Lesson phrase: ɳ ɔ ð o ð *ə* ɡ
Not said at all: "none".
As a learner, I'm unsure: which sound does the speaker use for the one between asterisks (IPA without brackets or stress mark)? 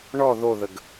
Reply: ə